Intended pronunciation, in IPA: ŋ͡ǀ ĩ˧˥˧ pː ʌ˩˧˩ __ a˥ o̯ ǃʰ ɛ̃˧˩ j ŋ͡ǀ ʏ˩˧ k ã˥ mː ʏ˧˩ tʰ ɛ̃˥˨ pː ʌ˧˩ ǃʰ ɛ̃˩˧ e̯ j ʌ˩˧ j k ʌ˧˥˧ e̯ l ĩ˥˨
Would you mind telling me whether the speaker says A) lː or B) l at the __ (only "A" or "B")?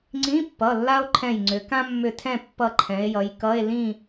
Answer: A